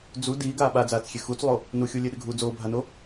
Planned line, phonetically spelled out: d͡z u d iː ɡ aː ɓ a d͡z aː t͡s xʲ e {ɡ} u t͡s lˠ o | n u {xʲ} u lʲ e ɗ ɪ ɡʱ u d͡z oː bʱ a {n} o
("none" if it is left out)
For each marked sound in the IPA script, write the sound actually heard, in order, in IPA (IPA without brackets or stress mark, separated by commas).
x, xʲ, n